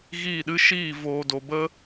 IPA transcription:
ɣ iː˦˨ ɗ ɨ˦ ʃ iː˦˨ v oː˨ d o˨ b ə˦

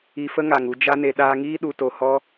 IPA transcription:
i˧ f ə˦ ŋ a˨ ŋ u˧ d͡ʒ a˧ n e˨ ɗ aː˧ ŋ iː˦ ɗ u˧ t o˧ h ɔ˦

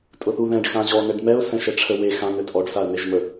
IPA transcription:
tʼ ʊ θ u ð ɛ̃ ɖ x ã ʑ ɔ n ɛ ɖ m ɛ ʊ̯ s ɛ̃ ʃ ɛ ʈ͡ʂʰ ə w e x ã n ø tʼ ɔ ɖ s a ə̯ n e ʒ m ə

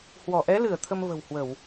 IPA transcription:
h w ɔ˧˩ ʔ ɛ˨˦ l ɨ˧˩ ə̯ t̪ʰ ə˧ m v ə̤˨˩ w h w ə˧˩˨ w

